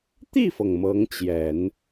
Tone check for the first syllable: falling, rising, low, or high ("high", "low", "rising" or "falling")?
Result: falling